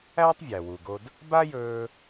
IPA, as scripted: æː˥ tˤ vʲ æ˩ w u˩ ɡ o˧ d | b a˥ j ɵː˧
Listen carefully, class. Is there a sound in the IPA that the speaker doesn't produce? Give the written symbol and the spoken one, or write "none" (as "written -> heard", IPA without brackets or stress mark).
none